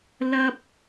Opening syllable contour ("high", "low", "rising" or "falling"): high